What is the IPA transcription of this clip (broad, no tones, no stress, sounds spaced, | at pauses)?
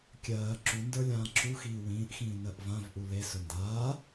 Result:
kʲ ɜː ǁ u n d ə˞ lʲ ãː ǁ u x iː w ĩː ʔ x ĩː n ɜ ʔ v ã v ʔ u l e s ɵ n d aː